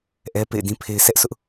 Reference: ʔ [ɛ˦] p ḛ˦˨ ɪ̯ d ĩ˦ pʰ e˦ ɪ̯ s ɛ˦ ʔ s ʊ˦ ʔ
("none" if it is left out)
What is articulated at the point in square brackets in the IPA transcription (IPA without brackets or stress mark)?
ɛ˦